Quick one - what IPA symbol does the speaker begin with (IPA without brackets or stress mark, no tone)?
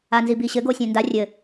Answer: a